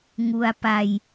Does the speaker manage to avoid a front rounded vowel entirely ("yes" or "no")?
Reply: yes